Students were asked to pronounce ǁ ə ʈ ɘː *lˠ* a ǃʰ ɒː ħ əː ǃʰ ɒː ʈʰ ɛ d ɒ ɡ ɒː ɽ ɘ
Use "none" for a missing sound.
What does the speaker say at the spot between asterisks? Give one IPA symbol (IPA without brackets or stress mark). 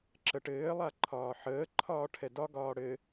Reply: lˠ